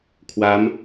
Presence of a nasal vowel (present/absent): absent